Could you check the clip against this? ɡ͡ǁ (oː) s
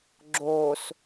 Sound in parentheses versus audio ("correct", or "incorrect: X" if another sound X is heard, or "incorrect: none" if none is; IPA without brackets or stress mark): correct